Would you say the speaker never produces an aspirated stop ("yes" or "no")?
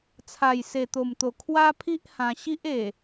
no